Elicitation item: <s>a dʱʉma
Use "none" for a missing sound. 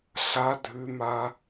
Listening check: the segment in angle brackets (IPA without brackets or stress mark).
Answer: ɬ